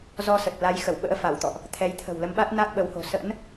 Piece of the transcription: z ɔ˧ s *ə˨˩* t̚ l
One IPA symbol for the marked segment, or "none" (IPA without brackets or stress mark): ə˨˩